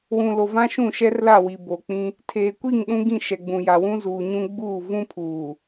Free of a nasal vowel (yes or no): no